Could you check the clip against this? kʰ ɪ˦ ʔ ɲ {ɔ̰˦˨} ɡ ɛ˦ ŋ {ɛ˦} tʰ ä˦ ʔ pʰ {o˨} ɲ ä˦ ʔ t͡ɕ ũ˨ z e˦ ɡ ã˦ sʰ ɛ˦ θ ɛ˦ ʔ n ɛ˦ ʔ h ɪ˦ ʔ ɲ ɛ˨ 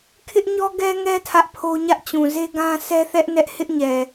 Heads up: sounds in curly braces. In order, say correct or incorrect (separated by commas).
incorrect, correct, incorrect